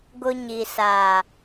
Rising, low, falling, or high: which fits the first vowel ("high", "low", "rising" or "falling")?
high